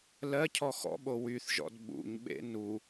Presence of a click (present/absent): absent